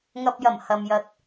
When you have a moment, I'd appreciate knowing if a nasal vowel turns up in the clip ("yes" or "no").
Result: no